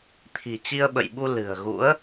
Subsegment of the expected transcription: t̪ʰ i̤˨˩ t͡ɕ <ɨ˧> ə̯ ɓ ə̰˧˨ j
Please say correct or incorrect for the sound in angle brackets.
incorrect